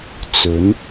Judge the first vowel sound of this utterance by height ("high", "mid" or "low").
mid